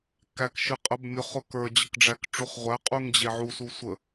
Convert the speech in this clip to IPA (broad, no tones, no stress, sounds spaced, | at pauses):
k æ k ʃ ɨ qʼ ə b mʲ ʊ χ ʊ k ə˞ d͡ʑ ə k ɖ͡ʐ æ k ʈ͡ʂ u χ ʁʷ æ qʼ u ŋ d͡ʑ e ʕ u s u sʷ ə